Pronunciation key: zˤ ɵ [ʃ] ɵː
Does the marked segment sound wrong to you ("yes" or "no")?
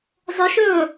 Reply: no